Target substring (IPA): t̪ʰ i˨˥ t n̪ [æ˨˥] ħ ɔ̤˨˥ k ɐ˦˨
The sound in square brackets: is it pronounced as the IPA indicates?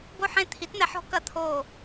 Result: no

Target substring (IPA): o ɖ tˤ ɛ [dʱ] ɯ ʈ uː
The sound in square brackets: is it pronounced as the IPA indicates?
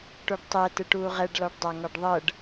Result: no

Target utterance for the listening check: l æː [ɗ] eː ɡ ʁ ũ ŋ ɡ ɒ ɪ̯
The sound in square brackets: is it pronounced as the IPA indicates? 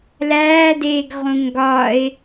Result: no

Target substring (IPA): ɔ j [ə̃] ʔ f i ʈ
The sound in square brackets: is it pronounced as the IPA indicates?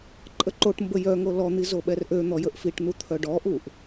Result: no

